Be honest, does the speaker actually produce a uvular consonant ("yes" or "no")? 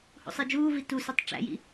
no